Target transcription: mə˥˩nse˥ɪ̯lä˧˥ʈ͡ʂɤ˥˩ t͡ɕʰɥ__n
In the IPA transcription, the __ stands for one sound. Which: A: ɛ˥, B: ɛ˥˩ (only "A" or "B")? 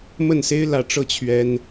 A